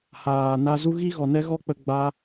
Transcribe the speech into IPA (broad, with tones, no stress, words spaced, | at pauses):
haː˨na˧zu˦ ɣi˦ɣɔ˨nɛ˦ɣɔ˦ k͡pə˧ ɡ͡ba˧